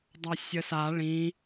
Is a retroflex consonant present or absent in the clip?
present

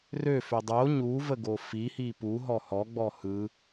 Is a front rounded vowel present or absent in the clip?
present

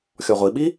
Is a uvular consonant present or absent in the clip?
present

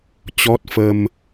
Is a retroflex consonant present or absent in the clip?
absent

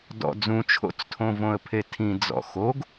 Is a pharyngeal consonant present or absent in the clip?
absent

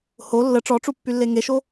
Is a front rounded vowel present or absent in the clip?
present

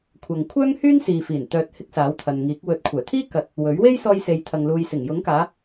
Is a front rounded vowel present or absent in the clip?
present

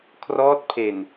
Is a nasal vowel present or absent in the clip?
absent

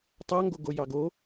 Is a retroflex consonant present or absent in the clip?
absent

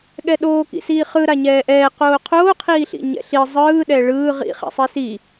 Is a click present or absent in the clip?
absent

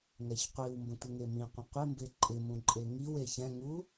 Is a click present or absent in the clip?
present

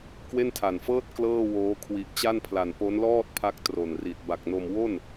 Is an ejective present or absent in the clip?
absent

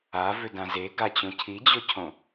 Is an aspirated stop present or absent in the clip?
present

